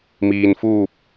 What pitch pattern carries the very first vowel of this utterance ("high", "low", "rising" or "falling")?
low